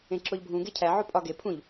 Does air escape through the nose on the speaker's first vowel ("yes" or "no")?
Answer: yes